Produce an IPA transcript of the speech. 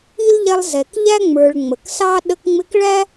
i˥ l ʎ ɛ˦ lˠ z ɛ˩ k ʎ æ˥ ŋ͡m ə˞˨ ɭ ŋ͡m ə˩ k s ɑ˥ ɗ ə˦ k ŋ͡m ɪ˦ k ɭ æ˥

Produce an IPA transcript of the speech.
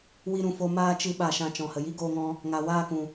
w i˧ ɾ ũ˨ f o˧ m aː˦ t͡ʃ ɨ˧ ɓ a˧ ʃ ã˧ t͡ʃ ɔ̃˨ h ə˨ j i˦ ɡ oː˧ ŋ ɔ̃˧ | ŋ a˨ w aː˦˨ k ũ˨

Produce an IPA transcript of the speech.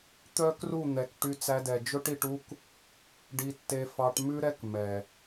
t̪ œ˦ k r u˦˨ n̪ ɛ˨ k ʈ y˧ t͡s æ˧ d ɛ˨ d͡ʒ ɵ˦ ʈ i˧ ʈ u˦ k | ɖ i˧ tː e˧ f ɑ˧ ʈ m ʉ˦ ɾ ɛ˦ k m ɛ˨

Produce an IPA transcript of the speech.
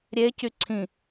ɾʲ e c y ǀʰ ĩ

